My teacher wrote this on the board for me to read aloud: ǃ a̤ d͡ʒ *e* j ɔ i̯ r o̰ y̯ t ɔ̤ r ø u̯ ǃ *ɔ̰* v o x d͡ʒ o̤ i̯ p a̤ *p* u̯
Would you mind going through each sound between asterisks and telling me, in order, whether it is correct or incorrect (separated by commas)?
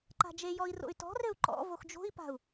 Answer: correct, correct, incorrect